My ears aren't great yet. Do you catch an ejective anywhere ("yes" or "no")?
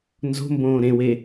no